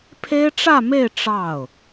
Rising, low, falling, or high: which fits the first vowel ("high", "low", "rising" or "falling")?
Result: high